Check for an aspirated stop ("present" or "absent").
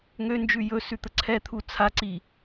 present